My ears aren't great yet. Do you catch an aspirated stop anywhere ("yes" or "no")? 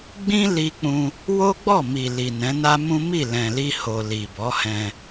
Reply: no